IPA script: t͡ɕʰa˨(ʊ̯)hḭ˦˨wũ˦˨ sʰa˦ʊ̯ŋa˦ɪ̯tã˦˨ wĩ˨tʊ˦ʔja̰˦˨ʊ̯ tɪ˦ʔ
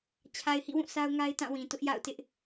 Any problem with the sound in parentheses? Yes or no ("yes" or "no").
yes